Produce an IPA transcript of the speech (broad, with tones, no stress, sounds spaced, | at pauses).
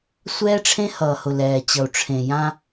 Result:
sʷ ɛː˦ ʈ͡ʂʰ ẽ˦ h ʌː˨ h ʊ˨ l ɛː˨ t͡ɕ ʌ˨ u̯ ʈ͡ʂʰ ẽ˨ j ã˦